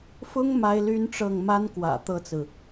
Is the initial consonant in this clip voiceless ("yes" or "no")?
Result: yes